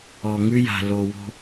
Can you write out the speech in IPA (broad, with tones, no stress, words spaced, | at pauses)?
ɔ˨ŋʉ˦ja̤˨ lo˨wo̤˦